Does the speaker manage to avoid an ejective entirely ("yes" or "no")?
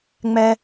yes